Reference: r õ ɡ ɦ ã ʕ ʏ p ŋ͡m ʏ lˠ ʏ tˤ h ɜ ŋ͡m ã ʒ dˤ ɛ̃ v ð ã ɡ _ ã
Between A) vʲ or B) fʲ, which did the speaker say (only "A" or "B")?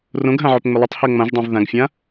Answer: B